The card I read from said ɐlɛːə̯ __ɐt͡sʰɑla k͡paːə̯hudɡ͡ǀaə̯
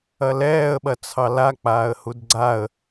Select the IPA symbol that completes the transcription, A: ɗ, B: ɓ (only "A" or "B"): B